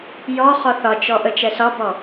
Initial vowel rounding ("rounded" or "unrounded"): rounded